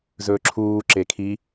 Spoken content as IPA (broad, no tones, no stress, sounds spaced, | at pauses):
z ɵː ǁʰ uː ǁ e kʰ i